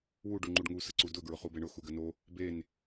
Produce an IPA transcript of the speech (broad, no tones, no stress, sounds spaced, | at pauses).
w u ɖ u ŋ͡ǃ u ɖ ŋ u s ə ǀ u d ʊ ɡ ɹ ʊ χ u b e ɳ ʊ x u ɡ ə n o | b e n